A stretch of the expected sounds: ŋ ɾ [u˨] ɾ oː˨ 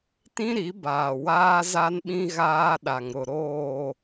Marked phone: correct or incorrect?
incorrect